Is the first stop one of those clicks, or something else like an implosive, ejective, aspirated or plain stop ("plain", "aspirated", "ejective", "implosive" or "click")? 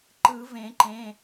click